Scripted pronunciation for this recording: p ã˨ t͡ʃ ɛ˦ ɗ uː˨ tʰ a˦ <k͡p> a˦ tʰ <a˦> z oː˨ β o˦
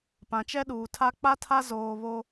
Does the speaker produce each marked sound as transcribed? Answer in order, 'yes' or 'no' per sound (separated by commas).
yes, yes